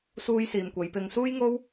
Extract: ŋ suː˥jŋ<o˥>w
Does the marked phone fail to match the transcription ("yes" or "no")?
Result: no